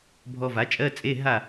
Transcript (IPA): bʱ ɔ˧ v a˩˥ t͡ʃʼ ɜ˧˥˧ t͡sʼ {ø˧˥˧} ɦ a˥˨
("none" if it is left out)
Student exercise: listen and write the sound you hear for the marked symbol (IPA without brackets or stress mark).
e˧˥˧